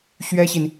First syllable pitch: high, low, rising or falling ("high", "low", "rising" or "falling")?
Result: high